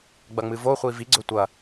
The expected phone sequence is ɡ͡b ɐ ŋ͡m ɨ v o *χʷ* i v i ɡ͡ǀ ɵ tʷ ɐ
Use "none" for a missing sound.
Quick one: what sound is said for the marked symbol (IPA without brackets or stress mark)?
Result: χʷ